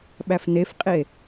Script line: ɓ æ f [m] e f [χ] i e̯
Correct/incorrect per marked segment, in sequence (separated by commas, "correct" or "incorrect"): incorrect, incorrect